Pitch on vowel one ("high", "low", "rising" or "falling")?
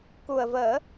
low